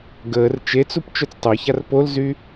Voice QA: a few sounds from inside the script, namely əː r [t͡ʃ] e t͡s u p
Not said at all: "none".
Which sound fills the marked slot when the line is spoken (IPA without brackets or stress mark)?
t͡ʃ